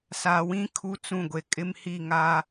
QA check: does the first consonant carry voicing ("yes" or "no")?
no